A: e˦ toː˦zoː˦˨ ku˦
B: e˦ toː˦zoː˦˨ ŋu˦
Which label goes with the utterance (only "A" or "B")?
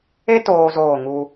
B